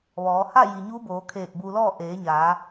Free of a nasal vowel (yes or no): yes